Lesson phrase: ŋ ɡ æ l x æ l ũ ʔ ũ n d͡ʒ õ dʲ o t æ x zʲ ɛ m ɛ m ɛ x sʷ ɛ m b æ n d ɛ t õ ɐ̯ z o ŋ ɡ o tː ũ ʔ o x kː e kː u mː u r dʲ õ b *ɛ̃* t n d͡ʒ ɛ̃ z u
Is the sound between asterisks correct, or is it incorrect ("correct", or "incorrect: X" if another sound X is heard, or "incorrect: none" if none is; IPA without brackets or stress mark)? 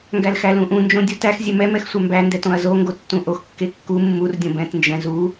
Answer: correct